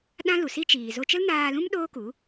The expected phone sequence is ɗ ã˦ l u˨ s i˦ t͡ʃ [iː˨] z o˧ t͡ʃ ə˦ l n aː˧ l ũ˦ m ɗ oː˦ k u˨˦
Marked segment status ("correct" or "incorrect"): correct